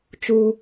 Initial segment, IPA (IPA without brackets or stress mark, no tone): t͡ʃ